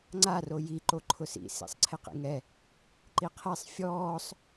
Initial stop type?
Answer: click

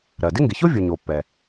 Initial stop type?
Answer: plain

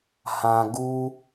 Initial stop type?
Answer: plain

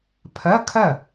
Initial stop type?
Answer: aspirated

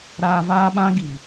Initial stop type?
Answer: implosive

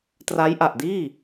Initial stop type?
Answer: plain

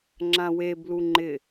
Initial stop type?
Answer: click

